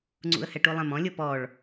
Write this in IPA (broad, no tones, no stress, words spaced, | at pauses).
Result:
ŋ͡ǀṵə̯hɛʈulˠɛ̃m ɔ̃lʲɤ pɔɭ